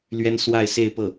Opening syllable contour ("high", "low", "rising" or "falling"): high